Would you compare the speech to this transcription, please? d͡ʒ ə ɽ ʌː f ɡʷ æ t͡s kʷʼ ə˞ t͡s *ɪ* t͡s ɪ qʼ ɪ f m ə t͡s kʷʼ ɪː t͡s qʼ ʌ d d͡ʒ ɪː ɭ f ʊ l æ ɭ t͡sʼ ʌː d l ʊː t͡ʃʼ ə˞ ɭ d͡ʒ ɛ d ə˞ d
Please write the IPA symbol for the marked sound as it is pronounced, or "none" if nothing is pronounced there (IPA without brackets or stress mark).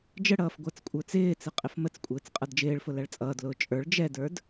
ɪː